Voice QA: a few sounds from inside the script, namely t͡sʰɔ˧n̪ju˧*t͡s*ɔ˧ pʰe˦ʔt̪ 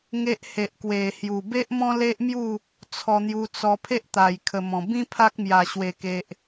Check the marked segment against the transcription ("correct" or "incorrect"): correct